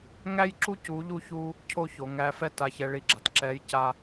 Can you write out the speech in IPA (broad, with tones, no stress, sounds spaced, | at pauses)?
ŋ æ˥ j ǁ u˥ c u˧˥ ʎ u˥ ç u˥ | cʰ o˥ ç o˩˧ ŋ æ˧˥ f ɛ˥ t a˧˥ ç ɛ˧˥ ɭ i˧˥ ɡ͡ǁ a˩ t ǁ ɛ˧˥ j c a˥